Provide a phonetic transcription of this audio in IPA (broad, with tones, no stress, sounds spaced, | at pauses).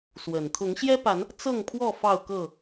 s w ə˨˩ n t̪ʰ ʊ˨˦ ŋ ɕ j ɛ˦ p a˨˦ n | t͡s ɤ˥˨ ŋ pʰ w ɔ˥˨ f ɑ˥˨ ʊ̯ k ɤ˥˨